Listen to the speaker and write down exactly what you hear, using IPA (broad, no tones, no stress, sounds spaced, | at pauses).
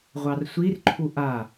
ʁʷ ɑ r sʷ i r ǃʰ u ʔ a